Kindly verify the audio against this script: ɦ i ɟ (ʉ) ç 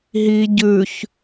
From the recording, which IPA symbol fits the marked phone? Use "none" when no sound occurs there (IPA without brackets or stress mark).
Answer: ʉ